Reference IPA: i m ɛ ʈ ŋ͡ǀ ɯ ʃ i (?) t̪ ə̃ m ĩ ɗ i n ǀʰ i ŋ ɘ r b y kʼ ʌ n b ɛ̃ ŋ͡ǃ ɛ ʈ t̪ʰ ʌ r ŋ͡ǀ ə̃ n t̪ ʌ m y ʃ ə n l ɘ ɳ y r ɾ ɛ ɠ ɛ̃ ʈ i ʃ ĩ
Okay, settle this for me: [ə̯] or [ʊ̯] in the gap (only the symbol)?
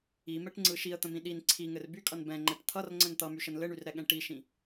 ə̯